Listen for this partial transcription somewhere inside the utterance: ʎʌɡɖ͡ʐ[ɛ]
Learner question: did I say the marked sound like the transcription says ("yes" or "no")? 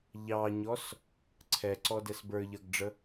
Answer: no